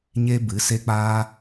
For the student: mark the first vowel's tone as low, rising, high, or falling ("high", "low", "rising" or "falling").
high